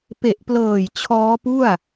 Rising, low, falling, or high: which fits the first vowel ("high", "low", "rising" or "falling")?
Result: low